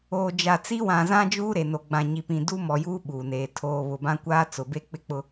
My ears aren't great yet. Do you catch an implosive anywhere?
yes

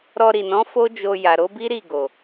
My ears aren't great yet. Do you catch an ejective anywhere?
no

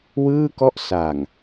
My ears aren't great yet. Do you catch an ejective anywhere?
no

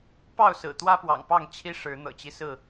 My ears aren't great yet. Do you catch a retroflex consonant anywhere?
yes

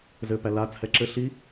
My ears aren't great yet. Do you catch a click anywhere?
yes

